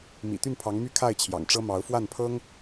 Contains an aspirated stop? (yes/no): yes